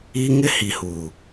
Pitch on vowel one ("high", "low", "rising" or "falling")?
high